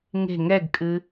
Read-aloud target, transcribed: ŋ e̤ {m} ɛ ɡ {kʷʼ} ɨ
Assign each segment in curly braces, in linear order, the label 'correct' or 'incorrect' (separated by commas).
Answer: incorrect, incorrect